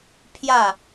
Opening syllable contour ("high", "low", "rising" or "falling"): falling